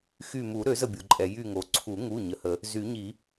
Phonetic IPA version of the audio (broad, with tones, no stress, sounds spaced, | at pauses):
x y˧˩ m u˨˩˦ ɾ ø˨˩˦ z ə˧˩ bʲ o˩ ǃʼ ɛ˩ j y˧˩ ŋ o˩ ǀʰ u˨˩˦ ŋ u˩˧˩ ɲ ə˩˧˩ h ə˨˩˦ | z y˨˩˦ ɲ i˨˩˦